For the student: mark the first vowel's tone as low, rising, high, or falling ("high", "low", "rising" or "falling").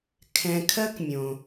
low